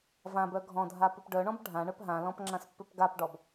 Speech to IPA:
v ã b œ ɡʱ ɔ̃ dʱ a p ʏ p ɖ œ ɳ ɔ̃ b ɖʱ ã ɳ œ p ɦ ã l ɔ̃ p ŋ͡ǁ ã s pː ʏ p ɡ a p ɖ ɔ b

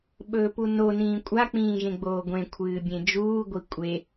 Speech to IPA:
ɓ ɵː p u n o n ĩː kʷʼ a k͡p ĩː ʒ ẽ ɡ͡b oː ɡʷ ẽ kʷʰ ɨː bʲ ẽ d͡ʒ uː ɡʷ i kʷʼ e

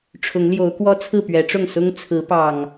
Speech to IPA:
ʈ͡ʂʰ ʊ˨˦ ŋ l j o˨˦ ʊ̯ k w ɔ˦ t͡sʰ ɹ̩˥˨ p ɥ ɛ˨˦ ʈ͡ʂ ʊ˥˨ ŋ s ʊ˦ ŋ t͡sʰ ɹ̩˨˦ p ɑ˨˩ ŋ

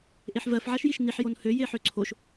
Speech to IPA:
ʔ e ħ v ɜ f ʕ a ʃ j i ʃ n i ħ j o n h ø j e ħ ø ǀʰ o ʃ

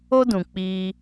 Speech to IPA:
o˦ d ũ˨ k͡p iː˧

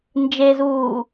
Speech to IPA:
n d͡ʒ e z uː

